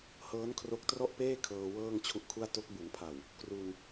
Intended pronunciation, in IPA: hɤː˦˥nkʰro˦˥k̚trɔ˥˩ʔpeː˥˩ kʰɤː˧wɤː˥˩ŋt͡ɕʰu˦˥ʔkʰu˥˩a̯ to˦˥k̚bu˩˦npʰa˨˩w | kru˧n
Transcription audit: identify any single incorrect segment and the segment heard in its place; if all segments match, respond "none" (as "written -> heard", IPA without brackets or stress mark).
none